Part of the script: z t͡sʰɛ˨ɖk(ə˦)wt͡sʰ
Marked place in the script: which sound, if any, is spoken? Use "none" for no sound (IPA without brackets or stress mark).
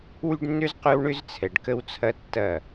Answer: ə˦